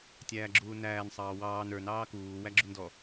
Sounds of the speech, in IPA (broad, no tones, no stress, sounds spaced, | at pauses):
tʲ æː ɡ͡ǁ uː n æː n sˤ ɑː w ɑː n ə˞ n ɑː k uː w æ ɡ͡ǁ u n d ɔ